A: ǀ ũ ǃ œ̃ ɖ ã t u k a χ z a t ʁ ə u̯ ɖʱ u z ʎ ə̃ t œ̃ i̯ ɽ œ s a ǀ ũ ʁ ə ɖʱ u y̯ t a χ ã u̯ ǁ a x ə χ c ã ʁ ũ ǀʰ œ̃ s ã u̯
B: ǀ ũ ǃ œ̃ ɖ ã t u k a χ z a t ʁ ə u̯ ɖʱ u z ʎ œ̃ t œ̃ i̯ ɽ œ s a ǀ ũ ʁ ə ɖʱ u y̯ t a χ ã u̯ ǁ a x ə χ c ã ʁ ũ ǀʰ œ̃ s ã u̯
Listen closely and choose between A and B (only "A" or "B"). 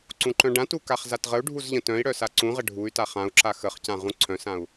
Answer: A